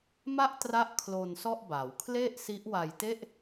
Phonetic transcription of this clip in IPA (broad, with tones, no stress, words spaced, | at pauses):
ma˥˩ʔtra˦˥ʔ kʰlo˧nsɔ˥˩ʔba˩˦w kʰle˥˩ʔsi˦˥ʔwa˧j te˥˩ʔ